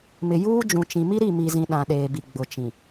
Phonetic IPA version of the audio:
m ɪ˨ j uː˦ d͡ʒ ũ˨ t͡ʃ ĩ˨ m i˦ ɾ i˦˨ m i˨ z ĩ˨ ɗ ã˨ ɗ eː˨ b i˨ ɡ͡b ʊ˨ t͡ʃ ĩ˨

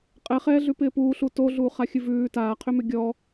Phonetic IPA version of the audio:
qʼ ɛ χ ɛː ɮ ʉ p ɪː p uː ɬ u t o ɮ uː χ a xʲ ɨ v ʉː t aː qʰ ʏ m ʏ ɡʲ ɔ

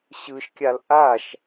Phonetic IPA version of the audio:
ɕ ɯ ʃ kʲ a l ʔ a ʃ

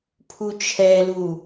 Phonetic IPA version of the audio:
pʰ u t͡ʃʰ ɛ l u

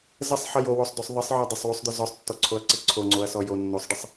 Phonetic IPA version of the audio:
z ə sˤ ħ ə j o w o sˤ d o sˤ ðˤ ə sˤ ʕ ɔ dˤ ə sˤ w u sˤ d̪ œ z ɔ sˤ tː ɔ ǀʰ o ɐ̯ ǀ ə ǀʰ o ŋ͡ǀ o ɐ̯ s ɔ j o nː o sˤ ɖ ə sˤ

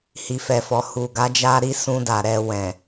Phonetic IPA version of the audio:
h i˨ f ɛ˨ f ɔ˨ h u˨ ɡ a˨˦ d͡ʒ a˦ ɾ i˦ s ũ˧ d a˨ ɾ ɛ˧ w ɛ̃˨

